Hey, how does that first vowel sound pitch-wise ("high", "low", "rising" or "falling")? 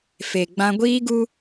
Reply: low